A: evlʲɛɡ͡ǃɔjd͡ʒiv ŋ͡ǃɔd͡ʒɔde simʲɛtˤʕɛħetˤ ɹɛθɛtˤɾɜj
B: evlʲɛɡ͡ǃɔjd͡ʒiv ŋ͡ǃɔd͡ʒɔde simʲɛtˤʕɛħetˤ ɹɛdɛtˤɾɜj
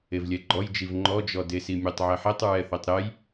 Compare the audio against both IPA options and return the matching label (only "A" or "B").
A